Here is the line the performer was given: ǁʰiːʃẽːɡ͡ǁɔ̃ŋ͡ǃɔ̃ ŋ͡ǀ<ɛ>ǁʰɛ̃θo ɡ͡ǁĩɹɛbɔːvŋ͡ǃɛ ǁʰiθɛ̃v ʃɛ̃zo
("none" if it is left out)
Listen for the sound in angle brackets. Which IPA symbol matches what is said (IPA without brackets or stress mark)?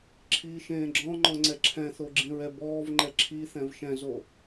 ɛ